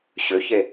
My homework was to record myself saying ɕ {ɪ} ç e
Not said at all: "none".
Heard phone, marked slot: ʏ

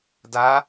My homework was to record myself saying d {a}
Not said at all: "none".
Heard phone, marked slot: a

